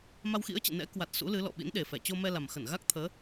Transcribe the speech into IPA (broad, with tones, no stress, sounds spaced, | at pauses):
m a˧ w x ḭ˧˥ ə̯ t͡ɕ ɨ̰˧˨ n ɛ̰˧˥ k w a˨˩ t̚ s ṵ˧˥ l ɨ˨˦ l ɔ̰˧˨ ɓ ḭ˧˥ n ɗ e˨˩ f ɛ˧˩ t͡ɕ o˧ m ɛ˧ l a˨˩ m x ə˧˩ n ɣ a˦˥ k̚ t̪ʰ əː˨˦